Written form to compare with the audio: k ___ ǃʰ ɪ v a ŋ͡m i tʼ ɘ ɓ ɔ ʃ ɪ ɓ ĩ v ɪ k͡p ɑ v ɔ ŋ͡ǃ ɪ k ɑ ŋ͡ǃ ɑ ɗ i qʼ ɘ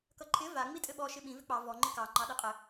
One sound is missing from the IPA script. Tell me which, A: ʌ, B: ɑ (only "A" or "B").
A